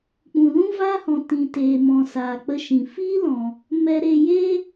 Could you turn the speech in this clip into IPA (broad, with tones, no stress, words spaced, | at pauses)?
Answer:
k͡pũ˨lũ˦vaː˦hɔ̃˨ tĩ˨teː˨mɔ̃˨ saː˨k͡pə˧ʃĩ˨ fiː˦lɔ̃˨ | mɛ˧ɾe˧ je˦